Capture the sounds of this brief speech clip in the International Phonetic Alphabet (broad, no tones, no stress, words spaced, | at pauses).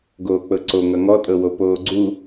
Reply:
ɡoːk͡pɤǀo ŋʌŋɔtʼɤwo poːɡ͡ǀu